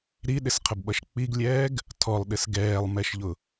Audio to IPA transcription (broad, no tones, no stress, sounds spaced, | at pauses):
ɾ i ɗ ɪ s qʰ ə b ɓ ʌ ʃ k͡p i ɡ lʲ ɛː ɡ | tʰ ɔ lˠ ɗ ɪ s ɡ ɛː lˠ m ɛ ʃ ʎ ʊ